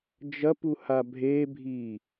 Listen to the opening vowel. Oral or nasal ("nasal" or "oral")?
oral